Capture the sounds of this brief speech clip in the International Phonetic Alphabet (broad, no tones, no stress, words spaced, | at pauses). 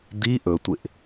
d̪i ʔɵtʷɪʔ